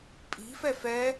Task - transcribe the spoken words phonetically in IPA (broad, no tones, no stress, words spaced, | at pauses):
pʼi̤fɛf ɛ